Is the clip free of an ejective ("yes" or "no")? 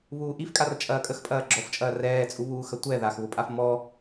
no